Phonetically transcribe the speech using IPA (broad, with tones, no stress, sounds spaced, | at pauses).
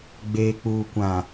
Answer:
ɡ͡b eː˨ k͡p uː˨ kʷ ã˨